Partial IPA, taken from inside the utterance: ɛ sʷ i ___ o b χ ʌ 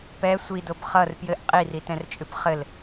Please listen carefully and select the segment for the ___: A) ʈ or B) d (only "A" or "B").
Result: B